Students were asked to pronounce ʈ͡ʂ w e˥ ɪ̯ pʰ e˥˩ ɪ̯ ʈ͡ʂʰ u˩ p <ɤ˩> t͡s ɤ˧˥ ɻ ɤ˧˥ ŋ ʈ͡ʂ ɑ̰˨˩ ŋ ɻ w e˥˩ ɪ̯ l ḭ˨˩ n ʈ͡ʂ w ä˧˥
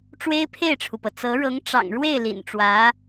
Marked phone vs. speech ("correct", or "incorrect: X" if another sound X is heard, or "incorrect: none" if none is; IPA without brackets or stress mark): correct